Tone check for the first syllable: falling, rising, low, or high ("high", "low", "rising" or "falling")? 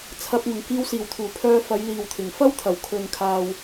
low